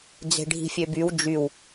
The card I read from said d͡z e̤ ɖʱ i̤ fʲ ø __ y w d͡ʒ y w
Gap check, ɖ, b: b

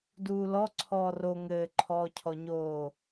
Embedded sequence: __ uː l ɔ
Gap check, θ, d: d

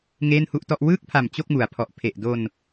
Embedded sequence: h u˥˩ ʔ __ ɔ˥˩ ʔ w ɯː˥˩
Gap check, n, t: t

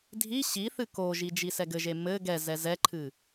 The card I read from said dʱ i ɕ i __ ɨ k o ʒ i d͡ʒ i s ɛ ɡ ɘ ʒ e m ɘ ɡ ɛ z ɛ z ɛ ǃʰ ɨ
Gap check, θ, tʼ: θ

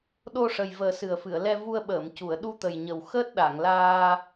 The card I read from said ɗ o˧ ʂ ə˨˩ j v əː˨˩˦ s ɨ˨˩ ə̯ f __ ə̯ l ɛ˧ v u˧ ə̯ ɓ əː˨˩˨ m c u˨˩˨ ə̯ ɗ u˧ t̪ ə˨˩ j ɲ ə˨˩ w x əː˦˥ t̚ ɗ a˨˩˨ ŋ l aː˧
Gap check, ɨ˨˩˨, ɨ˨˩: ɨ˨˩˨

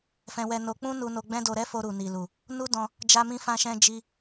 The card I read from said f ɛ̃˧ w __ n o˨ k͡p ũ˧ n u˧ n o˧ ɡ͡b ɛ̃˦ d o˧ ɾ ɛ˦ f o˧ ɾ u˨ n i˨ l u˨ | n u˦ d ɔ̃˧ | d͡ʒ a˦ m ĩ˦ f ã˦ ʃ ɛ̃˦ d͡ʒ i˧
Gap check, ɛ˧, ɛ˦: ɛ˧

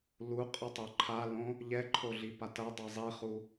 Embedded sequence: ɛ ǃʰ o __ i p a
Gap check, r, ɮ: ɮ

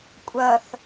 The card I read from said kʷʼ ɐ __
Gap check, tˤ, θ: θ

